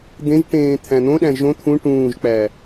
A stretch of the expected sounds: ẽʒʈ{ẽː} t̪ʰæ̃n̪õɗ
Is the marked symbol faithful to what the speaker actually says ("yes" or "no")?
yes